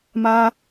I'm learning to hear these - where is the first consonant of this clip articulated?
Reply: lips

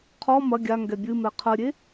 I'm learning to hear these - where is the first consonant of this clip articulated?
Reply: uvula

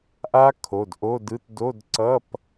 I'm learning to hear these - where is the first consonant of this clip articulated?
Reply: throat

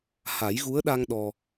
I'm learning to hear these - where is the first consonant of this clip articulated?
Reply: throat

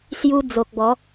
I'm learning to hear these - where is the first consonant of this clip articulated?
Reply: tongue tip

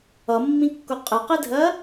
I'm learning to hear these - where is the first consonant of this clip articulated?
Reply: lips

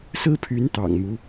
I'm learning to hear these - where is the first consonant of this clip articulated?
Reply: tongue tip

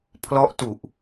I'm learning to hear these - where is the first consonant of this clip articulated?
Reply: lips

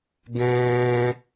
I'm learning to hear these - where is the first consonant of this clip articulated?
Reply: velum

